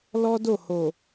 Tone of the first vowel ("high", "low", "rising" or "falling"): high